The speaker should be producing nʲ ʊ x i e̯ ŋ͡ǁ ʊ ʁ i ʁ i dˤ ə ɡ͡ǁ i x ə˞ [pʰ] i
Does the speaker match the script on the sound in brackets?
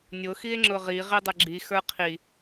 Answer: no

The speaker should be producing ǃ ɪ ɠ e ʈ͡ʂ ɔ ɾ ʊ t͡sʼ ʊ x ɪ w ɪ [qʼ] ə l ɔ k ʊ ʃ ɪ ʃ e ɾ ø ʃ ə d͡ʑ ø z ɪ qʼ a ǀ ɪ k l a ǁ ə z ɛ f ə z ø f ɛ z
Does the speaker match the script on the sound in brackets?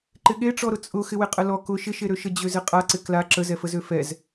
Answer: yes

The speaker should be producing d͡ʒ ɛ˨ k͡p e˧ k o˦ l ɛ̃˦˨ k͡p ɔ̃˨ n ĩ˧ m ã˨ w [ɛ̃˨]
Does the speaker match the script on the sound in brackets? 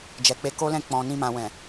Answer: yes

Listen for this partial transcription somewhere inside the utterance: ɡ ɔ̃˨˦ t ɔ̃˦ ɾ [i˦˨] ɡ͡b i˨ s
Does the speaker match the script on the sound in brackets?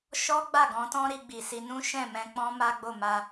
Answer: no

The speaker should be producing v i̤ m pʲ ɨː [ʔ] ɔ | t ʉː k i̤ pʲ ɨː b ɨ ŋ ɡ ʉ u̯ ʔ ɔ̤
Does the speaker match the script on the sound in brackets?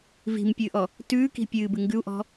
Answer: yes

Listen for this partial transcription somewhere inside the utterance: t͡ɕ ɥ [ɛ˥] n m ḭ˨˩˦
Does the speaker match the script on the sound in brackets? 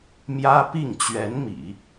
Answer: no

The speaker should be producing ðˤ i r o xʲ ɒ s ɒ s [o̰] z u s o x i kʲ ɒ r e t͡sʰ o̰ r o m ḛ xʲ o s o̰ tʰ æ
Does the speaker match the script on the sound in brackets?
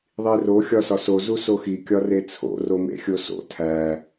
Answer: no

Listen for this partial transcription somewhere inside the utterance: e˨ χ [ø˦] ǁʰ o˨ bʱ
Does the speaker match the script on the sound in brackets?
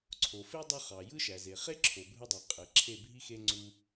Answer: no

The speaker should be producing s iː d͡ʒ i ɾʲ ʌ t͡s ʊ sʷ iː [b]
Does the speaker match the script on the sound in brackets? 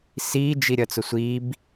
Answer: yes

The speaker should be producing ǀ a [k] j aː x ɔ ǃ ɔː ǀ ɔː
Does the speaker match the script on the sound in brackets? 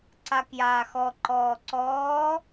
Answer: yes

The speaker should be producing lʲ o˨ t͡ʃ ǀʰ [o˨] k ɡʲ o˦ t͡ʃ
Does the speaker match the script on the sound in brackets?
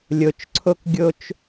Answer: no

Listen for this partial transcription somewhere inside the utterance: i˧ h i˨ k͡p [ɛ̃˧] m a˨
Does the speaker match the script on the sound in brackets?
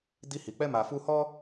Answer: no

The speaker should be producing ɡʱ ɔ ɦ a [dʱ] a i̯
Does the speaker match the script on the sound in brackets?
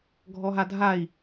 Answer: yes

